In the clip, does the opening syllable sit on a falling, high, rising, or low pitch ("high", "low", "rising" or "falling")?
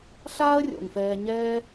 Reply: high